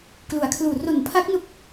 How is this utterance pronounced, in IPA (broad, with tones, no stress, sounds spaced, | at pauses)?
k l u˩˦ a̯ kʰ l uː˨˩ r o˨˩ n pʰ a˦˥ k̚ n u˦˥ k̚